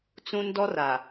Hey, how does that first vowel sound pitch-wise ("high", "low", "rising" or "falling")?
high